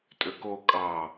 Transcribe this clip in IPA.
tʼ ø k o kʼ ɑ

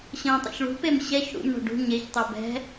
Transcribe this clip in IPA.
ɕ ə̃ː tˤ ṵ ç ɭ ṳ p e m ɕ ɛ ç ɽ ṵ m ɳ ɔ̤ ɖ ṳ ɲ e ç tˤ ɤ b ɛ̤

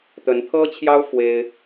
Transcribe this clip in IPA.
t̪ ə˧˥ n t̪ʰ ɤ˥ t͡ɕʰ j ɑ˥ ʊ̯ f w e˥ ɪ̯

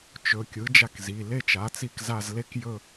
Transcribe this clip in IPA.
t͡ʃ ɵ˩˧˩ kʲ ɯ˩˥ d͡ʒ a˦˨ k z i˩˧˩ l e˦˨ t͡ʃ a˩˥ t͡s i˦˨ k z a˦˨ z l e˦˨ k j ɵ˦˨

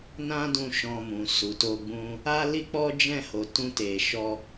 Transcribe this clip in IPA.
n ã˦ d ũ˧ ʃ ɔ̃˧ m ũ˨ s u˨ t o˧ ɡ͡b ũ˦ | a˦ l i˦ k͡p ɔ˦ d͡ʒ ɛ̃˦˨ h o˨ t ũ˧ t e˨ ʃ ɔ˧

